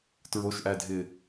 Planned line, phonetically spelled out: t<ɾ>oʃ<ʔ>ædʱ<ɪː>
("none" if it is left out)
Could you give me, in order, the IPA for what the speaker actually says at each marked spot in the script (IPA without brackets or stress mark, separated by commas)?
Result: ɹ, ʔ, ɪː